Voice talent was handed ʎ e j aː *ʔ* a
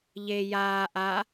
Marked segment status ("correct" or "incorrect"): correct